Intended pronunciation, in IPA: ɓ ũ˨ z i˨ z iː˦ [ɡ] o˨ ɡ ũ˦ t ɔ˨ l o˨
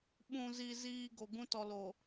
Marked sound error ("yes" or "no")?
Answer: no